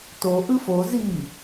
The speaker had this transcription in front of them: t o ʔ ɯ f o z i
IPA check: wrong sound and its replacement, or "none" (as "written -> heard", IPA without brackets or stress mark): none